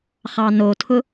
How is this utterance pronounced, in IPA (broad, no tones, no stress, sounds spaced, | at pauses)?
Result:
χ ɑ n o tʰ ʊ